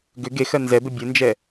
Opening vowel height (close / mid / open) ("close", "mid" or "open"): close